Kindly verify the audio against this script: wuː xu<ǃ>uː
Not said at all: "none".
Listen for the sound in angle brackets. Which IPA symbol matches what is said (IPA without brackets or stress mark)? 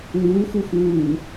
x